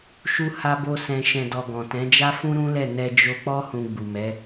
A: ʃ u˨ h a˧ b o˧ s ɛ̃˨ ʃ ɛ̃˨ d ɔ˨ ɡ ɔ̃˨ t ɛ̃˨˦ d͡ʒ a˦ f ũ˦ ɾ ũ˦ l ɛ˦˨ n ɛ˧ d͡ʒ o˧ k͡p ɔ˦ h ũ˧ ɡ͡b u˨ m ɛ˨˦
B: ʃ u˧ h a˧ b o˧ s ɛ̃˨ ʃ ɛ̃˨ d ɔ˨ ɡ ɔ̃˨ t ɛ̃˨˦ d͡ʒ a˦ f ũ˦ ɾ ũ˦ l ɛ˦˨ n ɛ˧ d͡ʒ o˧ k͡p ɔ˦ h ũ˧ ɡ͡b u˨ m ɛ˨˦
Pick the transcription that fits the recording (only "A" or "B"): B